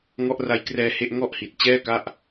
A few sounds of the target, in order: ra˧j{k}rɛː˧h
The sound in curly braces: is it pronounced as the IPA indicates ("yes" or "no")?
yes